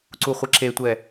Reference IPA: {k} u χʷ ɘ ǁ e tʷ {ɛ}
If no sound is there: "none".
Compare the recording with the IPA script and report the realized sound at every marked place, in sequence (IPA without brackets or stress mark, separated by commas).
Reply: ǀ, ɛ